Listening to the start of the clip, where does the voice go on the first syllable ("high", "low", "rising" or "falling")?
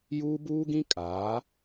high